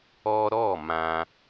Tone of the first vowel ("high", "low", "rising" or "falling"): high